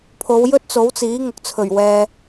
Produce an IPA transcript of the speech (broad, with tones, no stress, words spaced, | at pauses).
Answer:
pʰo˨˧wjɵ˥t̚t͡so˨˥wt͡siː˨˥ ŋʊ˨k̚t͡sʰɵ˨˩ɥ wɛː˨